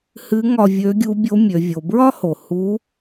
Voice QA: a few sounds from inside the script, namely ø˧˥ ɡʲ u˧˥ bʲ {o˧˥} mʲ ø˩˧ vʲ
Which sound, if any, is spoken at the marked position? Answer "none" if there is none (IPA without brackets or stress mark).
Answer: o˧˥